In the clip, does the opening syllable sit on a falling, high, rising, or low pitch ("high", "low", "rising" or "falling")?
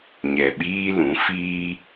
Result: low